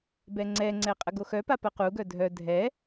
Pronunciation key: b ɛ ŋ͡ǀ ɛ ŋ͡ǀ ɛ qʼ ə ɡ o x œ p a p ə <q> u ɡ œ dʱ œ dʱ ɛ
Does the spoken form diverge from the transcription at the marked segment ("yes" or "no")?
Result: no